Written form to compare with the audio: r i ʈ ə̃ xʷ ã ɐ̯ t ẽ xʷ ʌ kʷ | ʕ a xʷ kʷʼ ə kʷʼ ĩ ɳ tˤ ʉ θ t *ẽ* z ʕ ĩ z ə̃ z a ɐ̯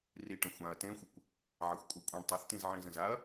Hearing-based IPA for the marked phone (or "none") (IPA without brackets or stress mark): ĩ